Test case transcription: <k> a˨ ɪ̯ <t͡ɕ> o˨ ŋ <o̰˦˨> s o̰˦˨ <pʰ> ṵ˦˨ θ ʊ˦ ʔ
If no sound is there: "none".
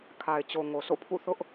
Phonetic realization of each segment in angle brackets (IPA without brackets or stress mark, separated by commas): kʰ, t͡ɕ, o˨, pʰ